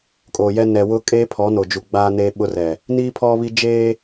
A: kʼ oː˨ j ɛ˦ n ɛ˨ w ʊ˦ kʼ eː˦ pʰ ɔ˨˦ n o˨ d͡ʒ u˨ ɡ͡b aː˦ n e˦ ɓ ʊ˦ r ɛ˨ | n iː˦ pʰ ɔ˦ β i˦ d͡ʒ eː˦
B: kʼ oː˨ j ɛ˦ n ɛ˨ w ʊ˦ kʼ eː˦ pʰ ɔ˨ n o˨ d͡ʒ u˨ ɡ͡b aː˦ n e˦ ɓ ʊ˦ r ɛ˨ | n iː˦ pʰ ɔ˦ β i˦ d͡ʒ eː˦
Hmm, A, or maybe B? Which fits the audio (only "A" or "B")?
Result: A